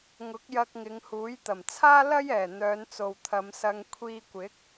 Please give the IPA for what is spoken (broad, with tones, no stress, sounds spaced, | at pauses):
ŋ ʊ˨˥ k̚ j ɐ˧ k̚ ŋ ɪ˨˧ ŋ h uː˨˥ j t̪ ɐ˨˩ m t͡sʰ aː˥ l ɐ˥ j ɛː˨˩ n̪ œː˨˧ n t͡s o˨ w t̪ʰ ɐ˨˧ m s ɐ˧ ŋ kʷʰ iː˧ kʷ ɪ˨˥ k̚